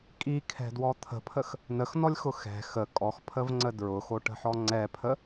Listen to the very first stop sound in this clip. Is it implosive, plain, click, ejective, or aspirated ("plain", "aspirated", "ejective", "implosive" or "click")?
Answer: ejective